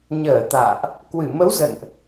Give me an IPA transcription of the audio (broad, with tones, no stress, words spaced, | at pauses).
ɲəː˧˩ t̪a̰ː˧˨ʔ | kwɨ˧˩mə˨˦w zə̰˧˨nʔ